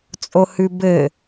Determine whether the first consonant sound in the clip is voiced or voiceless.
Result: voiceless